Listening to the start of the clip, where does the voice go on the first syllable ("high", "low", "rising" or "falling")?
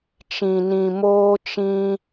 low